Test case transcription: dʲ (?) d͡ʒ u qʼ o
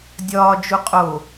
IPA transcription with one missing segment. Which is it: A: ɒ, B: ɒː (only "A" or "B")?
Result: B